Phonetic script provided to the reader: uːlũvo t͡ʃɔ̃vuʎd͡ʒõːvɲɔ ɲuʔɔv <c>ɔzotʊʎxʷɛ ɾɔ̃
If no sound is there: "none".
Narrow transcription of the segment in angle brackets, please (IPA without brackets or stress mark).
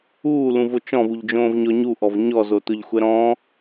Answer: ɲ